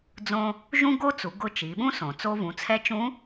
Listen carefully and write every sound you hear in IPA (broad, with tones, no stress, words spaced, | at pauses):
d͡zõ˧ | ʒũ˥ ɡo˥t͡su˩˧ ɡʊ˧ t͡ʃi˩˧ɓũ˥sõ˩ t͡so˧vũ˩˧t͡sʰɛ˧˥t͡ʃũ˧˥